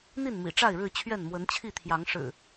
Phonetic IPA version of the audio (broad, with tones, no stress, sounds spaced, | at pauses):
n̪ i˥˨ n m ḭ˨˩ ʈ͡ʂ a˥˨ ɪ̯ ɻ ɻ̩˥˨ t͡ɕʰ ɥ ɛ˥˨ n m w ə˨˦ n t͡ɕʰ i˥˨ t̪ʰ j ɑ˨˦ ŋ ʂ ɻ̩˨˩